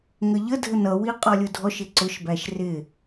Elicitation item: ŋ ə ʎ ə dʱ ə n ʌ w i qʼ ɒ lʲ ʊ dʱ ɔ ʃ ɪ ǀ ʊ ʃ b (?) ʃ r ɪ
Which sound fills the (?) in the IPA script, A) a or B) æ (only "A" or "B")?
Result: B